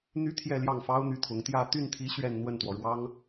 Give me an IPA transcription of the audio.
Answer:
n̪ y˥ t̪ʰ j ɛ˥˧ l j ɑ˥˩ ŋ f ɑ˥ ʊ̯ n̪ y˥˩ t̪ʰ ʊ˧˥ ŋ t̪ j ä˥˧ t̪ y˥˩ n t̪ʰ i˧˥ ɕ ɥ ɛ˥˧ n n̪ w ə˥˩ n t̪ w ɔ˩ ɻ w ɑ˥ ŋ

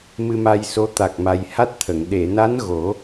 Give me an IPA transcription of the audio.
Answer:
m ɨ˧ m a˧ j s o˧˥ t̪ a˨˩ k̚ m a˨˩ j h a˦˥ t̚ t̪ʰ ə˨˩˨ ŋ ɗ e˨˩˨ n a˧˥ n ɣ o˨˩˦

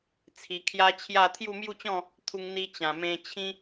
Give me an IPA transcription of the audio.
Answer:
t͡sʰ i˧ kʰ j a˦ t͡ɕʰ j a˥˧ t̪ʰ j u˥˧ m j u˥˧ t͡ɕ ɔ̃˥˧ | t̪ʰ u˧ ŋ n̪ i˧ t͡ɕ ã˨˩ m ẽ˧ t͡ɕʰ ĩ˦

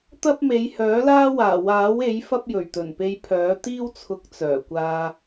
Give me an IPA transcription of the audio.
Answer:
t̪ ɐ˥ p̚ m e˨˧ j h œː˨˥ l aː˥ w aː˨˩ w aː˨˥ w e˨˥ j f ɐ˥ p̚ j ɵ˨˩ ɥ t̪ ɵ˨˩ n p e˧ j pʰ œː˨˥ t̪ iː˥ w t͡sʰ ʊ˨˥ k̚ t͡s œː˨˩ kʷ aː˧

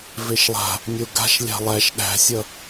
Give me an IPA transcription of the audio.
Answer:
v e ʃ lˠ a̤ | nʲ o ɡ a̤ ʃ lʲ a̤ lˠ æ ʃ ɗ æ̤ sʲ ʌ

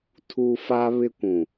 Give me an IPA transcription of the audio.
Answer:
tʰ u˦ f a˦ β ɪ˦ kʷ ũ˨

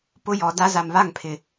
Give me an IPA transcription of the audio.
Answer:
p ʊ˦ j ɔ˨ d a˦ z a˨ m β a˦˨ ŋ pʰ ɪ˨

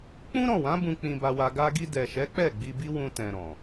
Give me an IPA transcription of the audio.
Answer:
k͡p ũ˦ ɾ ɔ̃˦˨ w ã˨˦ b ũ˧ k͡p ĩ˧ b a˧ w a˧ ɡ a˧ ɡ i˧ d ɛ˨ ʃ ɛ˨˦ k͡p ɛ˦˨ ɡ͡b i˧ b i˦ w ũ˧ t ɛ̃˨ ɾ ɔ̃˨

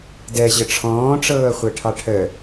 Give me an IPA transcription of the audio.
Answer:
d ɛ ʑ ə ʈ͡ʂʰ ɔ̃ː ʈ͡ʂ ɤː χʷ ɛ ʈʰ ɑ ʈʰ ə

